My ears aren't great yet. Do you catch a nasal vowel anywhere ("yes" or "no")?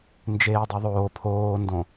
yes